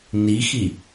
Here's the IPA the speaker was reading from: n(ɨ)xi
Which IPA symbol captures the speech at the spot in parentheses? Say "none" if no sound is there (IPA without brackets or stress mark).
i